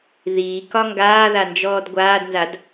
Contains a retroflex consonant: no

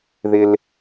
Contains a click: no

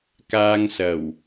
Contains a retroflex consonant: no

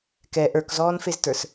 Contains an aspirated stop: no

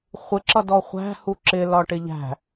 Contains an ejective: no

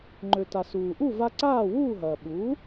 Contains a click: yes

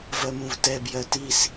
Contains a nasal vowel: yes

